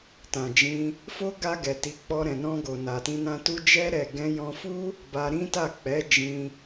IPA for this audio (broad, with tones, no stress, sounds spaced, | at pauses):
t ã˨ d͡ʒ ĩ˧ | f o˦ ɡ a˧ ɡ ɛ˨ t i˨˦ k͡p ɔ˧ ɾ ɛ̃˨ n ɔ̃˧ ɡ o˨ n a˨ t ĩ˧ n ã˧ t u˦ d͡ʒ ɛ˦ ɾ ɛ˦˨ ɡ ɛ̃˧ j ɔ̃˧ f u˦ | b a˧ ɾ ĩ˦ t a˦˨ k͡p ɛ˨˦ d͡ʒ ĩ˧